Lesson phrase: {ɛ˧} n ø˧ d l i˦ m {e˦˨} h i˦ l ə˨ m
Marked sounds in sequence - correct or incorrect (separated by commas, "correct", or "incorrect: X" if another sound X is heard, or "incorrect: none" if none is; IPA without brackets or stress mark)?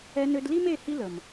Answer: correct, correct